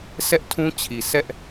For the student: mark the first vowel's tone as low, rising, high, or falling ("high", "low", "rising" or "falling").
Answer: high